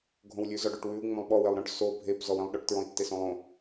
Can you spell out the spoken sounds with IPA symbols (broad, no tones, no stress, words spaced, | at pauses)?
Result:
ɡʱõwlʲʉ zɔɖoʈwʉu̯ ŋ͡mõlˠɓɔ welˠɾɔ̃ʈ so bʱep zɔwẽlˠɗɔʈ tɹɔ̃i̯tːesõlˠõ